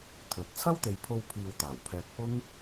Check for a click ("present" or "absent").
absent